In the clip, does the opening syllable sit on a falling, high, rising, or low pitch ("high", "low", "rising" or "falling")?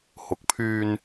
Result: rising